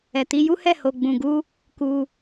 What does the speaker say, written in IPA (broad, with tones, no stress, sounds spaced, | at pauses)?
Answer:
ɛ˨ t i˧ j u˦ h ɛ˦˨ h o˧ ɡ͡b ũ˧ ɡ u˦ | k u˧